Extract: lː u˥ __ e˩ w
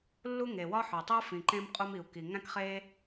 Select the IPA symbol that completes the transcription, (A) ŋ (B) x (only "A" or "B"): A